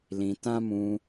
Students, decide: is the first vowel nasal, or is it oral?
nasal